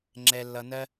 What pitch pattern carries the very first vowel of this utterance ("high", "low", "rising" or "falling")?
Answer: high